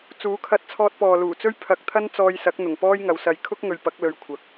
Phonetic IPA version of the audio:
t͡s uː˨˥ kʰ ɐ˧ t̚ t͡sʰ ɔː˧ t̚ p ɔː˨ l uː˨˩ t͡s ɵ˥ ɥ pʰ ɐ˧ k̚ t̪ʰ ɐ˥ n t͡s ɔː˧ j s ɐ˨˥ k̚ n̪ ʊ˨˩ ŋ p ɔː˥ j ŋ ɐ˨˧ w s ɐ˧ j kʰ ʊ˥ k̚ ŋ ɵ˨ ɥ p ɐ˨˥ k̚ l ɵ˧ ɥ kʷʰ ɐ˨˥ k̚

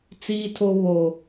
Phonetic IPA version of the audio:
t͡s iː˦ tʰ o˦ β o˦

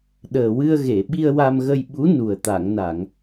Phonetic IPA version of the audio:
ɗ əː˨˩ w ɨ˧ ə̯ ɣ e˨˩˨ ɓ i˧ ə̯ w a˧ m ɣ ə˧ j ɓ u˧˥ n u˨˩ ə̯ t̪ a˨˩˨ ŋ n a˨˩˨ ŋ

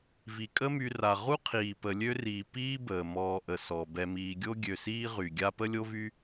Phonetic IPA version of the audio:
v i˩ kʼ ə˦ m y˨ r a˩ ʁ u˥ qʰ iː˩ p ə˨ lʲ ø˦ r iː˩ p iː˥ b əː˩ m ɔː˨ ʔ ə˩ s ɔ˩ b ɛ˨ m iː˨ ɡʲ o˦ ɡʲ ø˨ s iː˦ ʁ y˩ ɡʲ a˦ p ə˥ lʲ o˥ v y˥

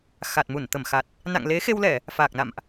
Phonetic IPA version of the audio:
x a˨˩ t̚ m u˧˩ n t̪ ə˧˩ m x a˨˩ t̚ | n a̰˧˨ ŋ l e˨˦ x e˧ w l ɛ˧˩˨ | f aː˨˩ k̚ n a̰˧˨ m ʔ

